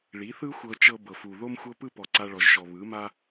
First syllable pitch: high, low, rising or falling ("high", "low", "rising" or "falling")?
rising